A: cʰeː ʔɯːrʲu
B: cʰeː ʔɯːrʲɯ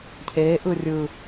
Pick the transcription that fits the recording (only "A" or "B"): B